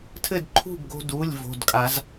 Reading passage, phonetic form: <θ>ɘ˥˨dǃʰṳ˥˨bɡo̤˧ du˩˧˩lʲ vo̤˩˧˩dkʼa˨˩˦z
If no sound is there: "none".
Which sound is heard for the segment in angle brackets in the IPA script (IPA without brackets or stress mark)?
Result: tʰ